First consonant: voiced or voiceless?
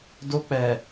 voiced